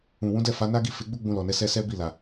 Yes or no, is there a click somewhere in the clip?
no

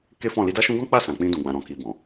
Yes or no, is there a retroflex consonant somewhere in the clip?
no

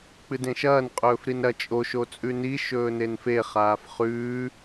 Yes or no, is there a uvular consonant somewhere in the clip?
yes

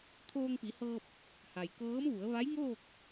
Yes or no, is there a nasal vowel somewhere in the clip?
no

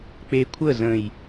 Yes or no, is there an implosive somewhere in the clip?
no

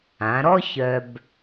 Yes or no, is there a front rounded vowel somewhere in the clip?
yes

